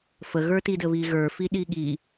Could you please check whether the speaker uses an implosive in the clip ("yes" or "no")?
yes